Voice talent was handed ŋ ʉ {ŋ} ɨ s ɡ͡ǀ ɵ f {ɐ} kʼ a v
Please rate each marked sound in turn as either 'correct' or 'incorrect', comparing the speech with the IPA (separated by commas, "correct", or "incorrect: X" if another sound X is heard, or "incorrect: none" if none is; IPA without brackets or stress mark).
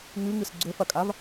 correct, correct